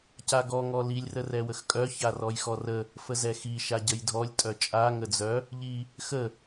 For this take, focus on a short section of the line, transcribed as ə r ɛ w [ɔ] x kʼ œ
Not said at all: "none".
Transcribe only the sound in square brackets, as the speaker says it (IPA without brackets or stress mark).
ə